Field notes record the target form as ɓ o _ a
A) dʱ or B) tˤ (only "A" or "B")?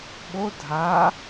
A